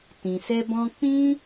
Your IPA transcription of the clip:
tĩ˨sɛ˦bɔ̃˦ k͡pĩ˦

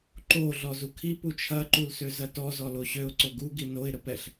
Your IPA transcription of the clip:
ǃo ɮɔzukʰi put͡ʃʰɐ ǃulsøzɐtɔ zɔloɕøʊ̯ ǀoɡu ɡinoɪ̯ ɾəpɛɬ

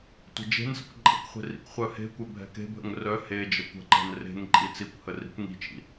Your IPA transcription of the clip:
tʷə̤d͡ʒe̤nsə̰kʷ ǃʼɛ̰kʷχʷe̤ rḭkχʷœhe̤kʷɛ bʱɛ̤ke̤bʱə̰ŋ rœ he d͡ʒəkʷə̤ǃɛ̤n re̤ŋ ǃʼit͡sikʷhə ri̤kʷŋi̤t͡ʃḭ

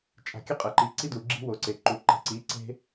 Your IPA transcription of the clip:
t͡ʃʼa̤˨kʲɘ˦ qʼɘ˨ǃi˨ǀi˦du˨ ɡ͡ǁi̤˦wo˨ǀe˨ǃu˨ ǃe̤˨ǀi˨˦ ǀe̤˦

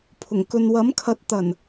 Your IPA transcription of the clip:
pʰʊ˨˩ŋ kɵ˨nwɐ˨˥mkʰɐ˨˥t̚ t̪ɐ˨˩n

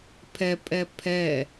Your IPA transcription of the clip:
pʰɛpʼɛ pʰɛ

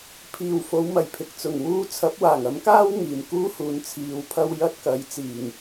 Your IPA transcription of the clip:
pʰiː˨˩w fo˨˥wmɐ˨˩jpʰɪ˨k̚t͡sʊ˨˩ŋ wuː˧t͡sʰɐ˨˥p̚ waː˨˩ŋɐ˨˥mkaː˥w ŋiː˨˩m kuː˥huː˨n t͡sʰiː˨˧wpʰɐ˥w jɐ˥t̚kɐ˨˥j t͡siː˨˩ŋ

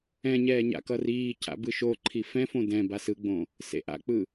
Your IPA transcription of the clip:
ɛ̃ɲɛː ɲa̰kʌriːcʰa̰ bɯʃoǃʰi fɛ̃fõ dɛ̃ basɯɡ͡bõ | sḛʔa̰k͡pɯ

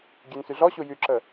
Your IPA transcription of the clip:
ɡʲønsyɮɔɕu jyǁə

